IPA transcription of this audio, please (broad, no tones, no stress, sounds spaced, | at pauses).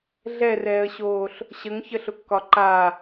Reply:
ɮ ɛ r ɛː ə̯ ɕ oː ɬ | ɕ ə ŋ ç ə ɬ ʊ kː ɒ ǃ a